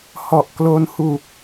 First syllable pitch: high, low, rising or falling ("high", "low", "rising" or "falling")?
low